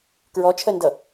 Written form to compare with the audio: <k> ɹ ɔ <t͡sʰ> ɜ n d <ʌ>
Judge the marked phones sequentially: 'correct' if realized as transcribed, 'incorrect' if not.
correct, incorrect, correct

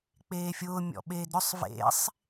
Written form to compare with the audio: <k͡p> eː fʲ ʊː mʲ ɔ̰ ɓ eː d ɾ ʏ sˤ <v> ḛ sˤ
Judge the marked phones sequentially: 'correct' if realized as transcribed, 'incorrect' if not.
correct, correct

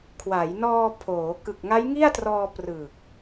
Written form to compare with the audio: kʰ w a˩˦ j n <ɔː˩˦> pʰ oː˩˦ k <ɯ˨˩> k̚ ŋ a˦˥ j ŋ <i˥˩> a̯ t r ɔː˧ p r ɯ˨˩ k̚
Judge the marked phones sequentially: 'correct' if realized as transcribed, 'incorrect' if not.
incorrect, correct, correct

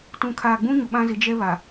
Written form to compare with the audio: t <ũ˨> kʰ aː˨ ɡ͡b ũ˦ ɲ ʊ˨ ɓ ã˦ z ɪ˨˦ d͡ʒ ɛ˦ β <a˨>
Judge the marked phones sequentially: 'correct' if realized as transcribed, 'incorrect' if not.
correct, correct

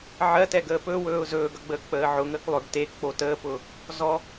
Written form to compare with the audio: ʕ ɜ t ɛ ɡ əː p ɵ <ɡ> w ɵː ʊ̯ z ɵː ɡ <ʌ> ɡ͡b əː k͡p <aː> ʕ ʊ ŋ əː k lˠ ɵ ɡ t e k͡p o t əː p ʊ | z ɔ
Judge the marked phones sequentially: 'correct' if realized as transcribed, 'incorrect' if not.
incorrect, correct, incorrect

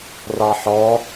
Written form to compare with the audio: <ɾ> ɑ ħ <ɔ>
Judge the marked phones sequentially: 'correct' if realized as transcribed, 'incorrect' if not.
incorrect, correct

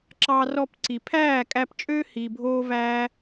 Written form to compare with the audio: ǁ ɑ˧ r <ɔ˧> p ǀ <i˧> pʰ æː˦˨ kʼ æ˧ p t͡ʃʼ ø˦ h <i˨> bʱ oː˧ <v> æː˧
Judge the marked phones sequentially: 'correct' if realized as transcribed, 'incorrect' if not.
correct, incorrect, correct, correct

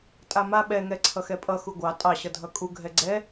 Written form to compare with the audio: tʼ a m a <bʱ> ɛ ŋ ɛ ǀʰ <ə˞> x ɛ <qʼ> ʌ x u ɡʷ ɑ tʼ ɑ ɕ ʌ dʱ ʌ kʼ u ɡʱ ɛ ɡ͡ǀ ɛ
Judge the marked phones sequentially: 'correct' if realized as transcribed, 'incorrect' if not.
incorrect, incorrect, incorrect

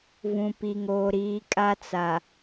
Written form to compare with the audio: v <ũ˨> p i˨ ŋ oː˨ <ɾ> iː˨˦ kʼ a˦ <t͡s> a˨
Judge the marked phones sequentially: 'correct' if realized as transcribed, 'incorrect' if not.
correct, correct, correct

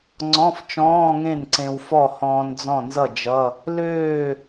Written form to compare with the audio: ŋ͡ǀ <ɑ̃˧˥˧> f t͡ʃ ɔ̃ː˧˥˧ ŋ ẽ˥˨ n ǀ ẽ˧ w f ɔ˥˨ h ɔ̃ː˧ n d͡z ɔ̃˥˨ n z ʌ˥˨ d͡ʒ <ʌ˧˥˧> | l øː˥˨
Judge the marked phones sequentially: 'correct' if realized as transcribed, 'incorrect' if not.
incorrect, correct

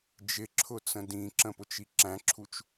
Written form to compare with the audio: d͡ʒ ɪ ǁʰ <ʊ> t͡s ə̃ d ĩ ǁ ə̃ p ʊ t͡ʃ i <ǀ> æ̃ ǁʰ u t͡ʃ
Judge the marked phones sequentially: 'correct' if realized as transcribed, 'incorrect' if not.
correct, incorrect

